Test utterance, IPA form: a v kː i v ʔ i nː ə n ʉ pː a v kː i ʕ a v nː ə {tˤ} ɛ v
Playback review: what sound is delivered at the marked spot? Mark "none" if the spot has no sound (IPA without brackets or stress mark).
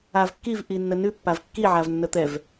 t̪